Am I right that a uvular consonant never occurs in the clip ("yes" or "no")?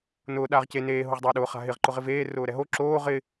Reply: no